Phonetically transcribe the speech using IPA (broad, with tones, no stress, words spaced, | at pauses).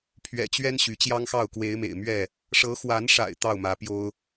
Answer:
pʰɥɛ̰˨˩t͡ɕɥɛ˦n ɕy˨˦t͡ɕjɑ˦ŋxɑ˥˨ʊ̯ kwe˨˦ɪ̯mḛ˨˩ɪ̯ mɥɛ˥˨ | ʂɤ˨˦xwa˨˦nʂa̰˨˩ɪ̯ t̪ɑ˥˨ʊ̯mä˨˦pjo˦ʊ̯